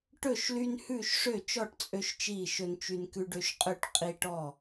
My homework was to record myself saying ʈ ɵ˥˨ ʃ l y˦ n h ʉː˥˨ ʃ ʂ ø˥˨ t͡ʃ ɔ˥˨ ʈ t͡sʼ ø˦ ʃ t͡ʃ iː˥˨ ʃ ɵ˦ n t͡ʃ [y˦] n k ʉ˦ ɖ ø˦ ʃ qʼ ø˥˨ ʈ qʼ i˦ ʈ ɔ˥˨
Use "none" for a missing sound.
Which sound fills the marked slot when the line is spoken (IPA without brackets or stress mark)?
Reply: y˦